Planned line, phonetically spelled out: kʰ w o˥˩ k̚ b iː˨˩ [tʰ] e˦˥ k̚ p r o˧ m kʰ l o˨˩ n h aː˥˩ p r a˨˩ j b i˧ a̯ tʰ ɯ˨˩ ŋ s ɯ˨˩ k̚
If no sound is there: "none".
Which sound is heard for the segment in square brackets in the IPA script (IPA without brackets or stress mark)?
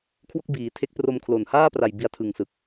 tʰ